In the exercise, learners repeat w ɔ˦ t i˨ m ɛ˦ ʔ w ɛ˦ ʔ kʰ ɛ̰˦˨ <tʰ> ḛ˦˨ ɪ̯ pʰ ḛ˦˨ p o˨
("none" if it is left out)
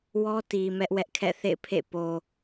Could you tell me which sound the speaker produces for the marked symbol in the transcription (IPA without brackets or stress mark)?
θ